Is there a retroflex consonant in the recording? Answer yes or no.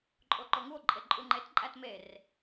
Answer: no